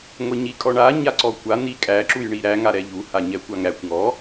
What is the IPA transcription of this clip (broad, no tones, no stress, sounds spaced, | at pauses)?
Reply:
ŋʷ ɛ ɲ i kʼ ɔ ɳ a ɲ a ǀ ɔ kʷ a n̪ i kʼ æ ǁ u j ɳ i ɾ æ ŋ a ɾ ɛ ʎ u h a ɲ ɛ kʷ a ŋ ɾ æ kʷ ŋ ɔ